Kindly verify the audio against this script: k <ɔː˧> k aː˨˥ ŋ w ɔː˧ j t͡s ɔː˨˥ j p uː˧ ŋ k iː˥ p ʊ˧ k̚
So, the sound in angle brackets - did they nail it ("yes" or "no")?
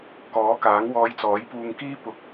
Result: no